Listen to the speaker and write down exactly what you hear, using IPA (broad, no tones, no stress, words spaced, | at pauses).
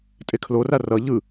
tʼekʰlora rʌ ʎɯ